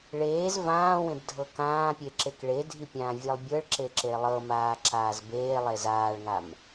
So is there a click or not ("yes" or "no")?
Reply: yes